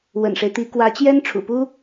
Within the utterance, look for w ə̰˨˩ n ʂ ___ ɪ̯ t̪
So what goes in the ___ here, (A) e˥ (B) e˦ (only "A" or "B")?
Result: B